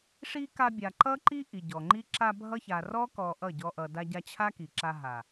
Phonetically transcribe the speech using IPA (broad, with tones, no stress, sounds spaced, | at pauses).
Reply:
ʂ i˦ k a˧ bʲ a˨ ǃ ʌ˦ ǃ i˦ ʔ i˨ ɟ ɔ˨ ŋ͡ǃ i˦ ǁ a˧ bʱ ʌ˧ ç a˨ r ɔ˦ k ɔ˧ ʔ ʌ˦˨ ɟ ɔ˧ ʔ ʌ˨ d a˧ ɟ a˧ t͡ɕʰ a˦ k i˨ ǁ a˧ ɦ a˨